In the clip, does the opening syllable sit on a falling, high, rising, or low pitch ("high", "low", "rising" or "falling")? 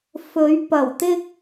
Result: rising